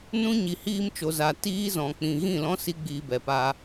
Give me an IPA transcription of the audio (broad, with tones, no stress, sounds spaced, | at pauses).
n ũ˦ ɲ i˨ h iː˧ m t͡ʃ o˨ z a˨ t iː˦ z ɔ̃˨ k͡p ĩ˨ ɣ ĩ˦˨ l ɔ̃˦ s i˦ ɡ͡b iː˧ b ɛ˨ p a˧